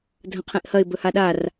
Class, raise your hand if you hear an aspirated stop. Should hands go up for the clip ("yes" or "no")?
yes